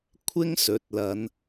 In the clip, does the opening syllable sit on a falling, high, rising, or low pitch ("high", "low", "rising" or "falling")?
high